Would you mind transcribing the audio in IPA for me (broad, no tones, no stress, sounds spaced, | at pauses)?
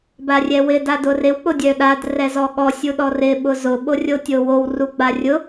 b a rʲ ɛ w ɪ d a d ʊ r ɪ w k͡p ʊ dʲ œ ɗ a d r ɛ z ɔ ɠ ɔ sʲ u ɗ ɔ r ɪ ɓ ʊ z ʊ ɓ o rʲ o tʲ o w o w r u ɡ͡b a rʲ ʊ